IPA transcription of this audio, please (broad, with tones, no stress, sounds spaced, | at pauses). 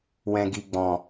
w ɛ̃˨ ɡ i˨ ɡ͡b ɔ̃˨